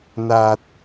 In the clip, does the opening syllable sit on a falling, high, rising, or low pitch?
low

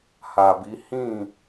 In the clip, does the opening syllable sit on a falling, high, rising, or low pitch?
low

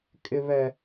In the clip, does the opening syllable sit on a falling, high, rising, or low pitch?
high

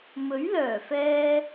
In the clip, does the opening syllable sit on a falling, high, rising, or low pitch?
rising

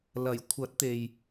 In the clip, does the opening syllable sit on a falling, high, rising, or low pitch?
low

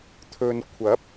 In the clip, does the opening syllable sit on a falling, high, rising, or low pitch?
low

